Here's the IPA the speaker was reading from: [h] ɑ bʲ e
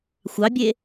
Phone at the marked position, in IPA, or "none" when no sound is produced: xʷ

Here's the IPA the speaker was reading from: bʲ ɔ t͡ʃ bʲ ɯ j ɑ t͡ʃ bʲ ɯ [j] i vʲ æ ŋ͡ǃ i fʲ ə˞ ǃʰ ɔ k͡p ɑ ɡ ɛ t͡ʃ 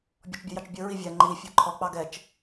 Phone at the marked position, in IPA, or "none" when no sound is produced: ɹ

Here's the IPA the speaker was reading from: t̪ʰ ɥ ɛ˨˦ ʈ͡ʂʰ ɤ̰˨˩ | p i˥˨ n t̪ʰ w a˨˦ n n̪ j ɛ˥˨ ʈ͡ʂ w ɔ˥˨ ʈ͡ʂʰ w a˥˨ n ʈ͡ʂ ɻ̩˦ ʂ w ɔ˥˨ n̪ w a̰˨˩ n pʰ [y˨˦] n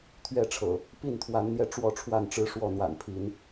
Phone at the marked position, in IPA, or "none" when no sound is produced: i˨˦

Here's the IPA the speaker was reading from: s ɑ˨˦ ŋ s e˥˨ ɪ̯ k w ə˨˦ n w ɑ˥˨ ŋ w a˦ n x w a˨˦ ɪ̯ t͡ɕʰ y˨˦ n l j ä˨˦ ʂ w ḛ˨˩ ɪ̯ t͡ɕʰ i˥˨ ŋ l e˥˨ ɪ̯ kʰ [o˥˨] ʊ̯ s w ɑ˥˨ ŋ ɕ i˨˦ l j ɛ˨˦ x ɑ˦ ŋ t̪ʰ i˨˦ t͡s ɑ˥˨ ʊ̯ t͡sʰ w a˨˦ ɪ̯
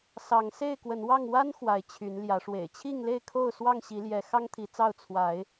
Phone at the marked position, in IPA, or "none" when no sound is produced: o˥˨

